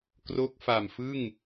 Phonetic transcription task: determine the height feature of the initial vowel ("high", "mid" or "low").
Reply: mid